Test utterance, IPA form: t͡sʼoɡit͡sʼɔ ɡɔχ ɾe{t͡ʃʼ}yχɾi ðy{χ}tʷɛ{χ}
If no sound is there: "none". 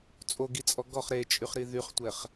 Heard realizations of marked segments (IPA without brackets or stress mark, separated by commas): t͡ʃʼ, χ, χ